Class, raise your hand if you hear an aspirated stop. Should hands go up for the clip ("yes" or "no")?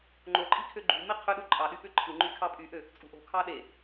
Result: yes